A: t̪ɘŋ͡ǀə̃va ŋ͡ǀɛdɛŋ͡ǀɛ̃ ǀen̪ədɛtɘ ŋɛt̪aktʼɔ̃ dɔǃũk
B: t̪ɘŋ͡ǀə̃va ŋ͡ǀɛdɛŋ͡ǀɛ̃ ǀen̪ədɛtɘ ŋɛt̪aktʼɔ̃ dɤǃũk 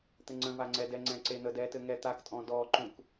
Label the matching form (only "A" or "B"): A